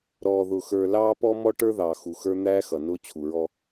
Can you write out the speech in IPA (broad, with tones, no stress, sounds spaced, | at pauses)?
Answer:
ɾ ɔː˨ ð ʊ˨ x ə˞˨ l ɑː˦ p ɔ˦ m ɔ˦ ʈ ə˞˦ ð ɑː˨ x u˨ x ə˞˦ n̪ æː˦ x ʌ˨ n ʊː˦ t͡ɕʰ u˨ ɹ ɔ˦